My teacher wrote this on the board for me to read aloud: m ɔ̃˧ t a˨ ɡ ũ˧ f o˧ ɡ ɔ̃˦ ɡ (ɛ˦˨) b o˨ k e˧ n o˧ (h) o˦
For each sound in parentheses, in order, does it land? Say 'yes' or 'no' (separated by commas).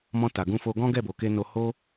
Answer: yes, yes